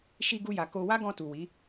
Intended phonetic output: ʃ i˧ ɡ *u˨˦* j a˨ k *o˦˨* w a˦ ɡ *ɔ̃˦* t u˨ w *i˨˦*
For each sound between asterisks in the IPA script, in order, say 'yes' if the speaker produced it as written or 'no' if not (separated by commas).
no, no, no, yes